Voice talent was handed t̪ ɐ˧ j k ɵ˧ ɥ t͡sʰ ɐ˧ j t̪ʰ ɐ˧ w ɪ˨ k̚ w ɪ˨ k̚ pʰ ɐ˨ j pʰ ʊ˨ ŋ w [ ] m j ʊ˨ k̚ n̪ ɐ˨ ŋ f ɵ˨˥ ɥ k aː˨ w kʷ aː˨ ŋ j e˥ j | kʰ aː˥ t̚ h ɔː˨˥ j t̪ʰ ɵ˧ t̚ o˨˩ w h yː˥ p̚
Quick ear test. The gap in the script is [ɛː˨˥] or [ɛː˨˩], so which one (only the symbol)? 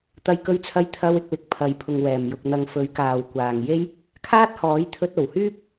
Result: ɛː˨˩